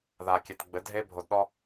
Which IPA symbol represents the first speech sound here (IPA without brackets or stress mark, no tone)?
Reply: ð